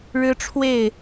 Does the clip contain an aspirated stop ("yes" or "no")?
yes